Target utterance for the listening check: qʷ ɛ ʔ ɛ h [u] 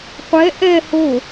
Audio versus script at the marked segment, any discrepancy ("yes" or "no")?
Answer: yes